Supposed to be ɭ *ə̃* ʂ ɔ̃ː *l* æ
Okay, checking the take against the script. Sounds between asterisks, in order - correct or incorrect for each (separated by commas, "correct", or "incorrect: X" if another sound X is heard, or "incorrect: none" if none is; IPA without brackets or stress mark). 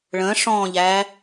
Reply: correct, incorrect: ʎ